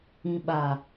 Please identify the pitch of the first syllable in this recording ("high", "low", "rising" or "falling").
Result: low